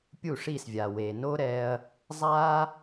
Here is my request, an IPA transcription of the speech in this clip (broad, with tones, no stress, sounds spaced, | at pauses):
pʲ u˥˩ ʂ i˥˩ s vʲ a˩ w e˩ n o˥ ɾ ɛ˧ ɐ̯ | zˤ a˥